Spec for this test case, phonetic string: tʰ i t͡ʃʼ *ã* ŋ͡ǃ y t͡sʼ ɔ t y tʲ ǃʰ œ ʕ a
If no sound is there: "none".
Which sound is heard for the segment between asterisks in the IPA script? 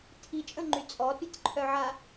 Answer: ə̃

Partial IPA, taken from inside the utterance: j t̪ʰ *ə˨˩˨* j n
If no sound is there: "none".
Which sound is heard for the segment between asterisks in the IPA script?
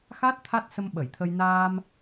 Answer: ə˧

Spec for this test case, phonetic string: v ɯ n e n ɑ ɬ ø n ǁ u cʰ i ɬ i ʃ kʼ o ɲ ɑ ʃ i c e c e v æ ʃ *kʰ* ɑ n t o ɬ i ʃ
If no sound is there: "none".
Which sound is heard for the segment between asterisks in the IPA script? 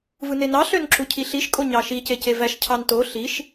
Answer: cʰ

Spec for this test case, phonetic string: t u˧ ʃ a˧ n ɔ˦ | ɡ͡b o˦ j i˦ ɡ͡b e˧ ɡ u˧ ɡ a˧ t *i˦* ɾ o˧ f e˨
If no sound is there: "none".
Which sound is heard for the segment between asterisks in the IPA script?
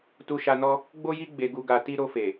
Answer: i˦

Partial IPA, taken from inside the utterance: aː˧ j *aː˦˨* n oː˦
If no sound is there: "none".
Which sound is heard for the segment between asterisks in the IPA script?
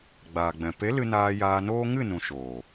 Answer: aː˧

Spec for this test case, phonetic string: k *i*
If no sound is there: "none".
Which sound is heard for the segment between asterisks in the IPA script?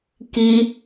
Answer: i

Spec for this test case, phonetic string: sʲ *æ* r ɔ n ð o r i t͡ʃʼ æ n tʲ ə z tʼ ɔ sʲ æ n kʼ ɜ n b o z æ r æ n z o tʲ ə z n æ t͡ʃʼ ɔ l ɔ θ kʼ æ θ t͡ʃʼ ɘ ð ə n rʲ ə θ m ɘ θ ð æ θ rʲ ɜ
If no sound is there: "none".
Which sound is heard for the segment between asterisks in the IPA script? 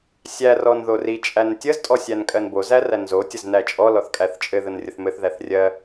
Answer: æ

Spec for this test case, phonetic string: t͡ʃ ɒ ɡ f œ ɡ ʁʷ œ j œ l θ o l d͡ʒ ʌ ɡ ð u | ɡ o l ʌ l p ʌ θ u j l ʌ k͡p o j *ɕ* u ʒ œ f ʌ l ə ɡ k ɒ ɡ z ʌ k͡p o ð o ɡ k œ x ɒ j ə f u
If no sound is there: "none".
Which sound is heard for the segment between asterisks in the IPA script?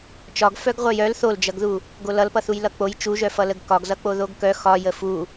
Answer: t͡ʃ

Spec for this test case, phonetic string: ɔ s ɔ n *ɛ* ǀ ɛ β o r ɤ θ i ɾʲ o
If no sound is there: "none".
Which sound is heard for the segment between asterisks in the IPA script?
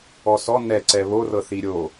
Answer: ɛ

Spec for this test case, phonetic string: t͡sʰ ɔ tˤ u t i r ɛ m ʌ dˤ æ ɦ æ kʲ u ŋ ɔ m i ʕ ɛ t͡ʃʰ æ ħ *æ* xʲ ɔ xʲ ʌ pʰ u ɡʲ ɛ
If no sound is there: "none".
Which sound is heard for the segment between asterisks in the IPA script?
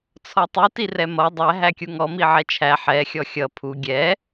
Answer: ɛ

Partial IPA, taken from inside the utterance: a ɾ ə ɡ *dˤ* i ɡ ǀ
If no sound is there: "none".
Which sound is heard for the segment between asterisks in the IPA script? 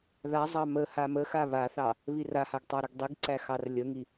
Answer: dˤ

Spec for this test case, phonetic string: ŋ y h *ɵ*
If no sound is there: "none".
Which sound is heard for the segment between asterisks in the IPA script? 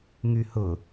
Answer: ʊ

